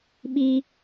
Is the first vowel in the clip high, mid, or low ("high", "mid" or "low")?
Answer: high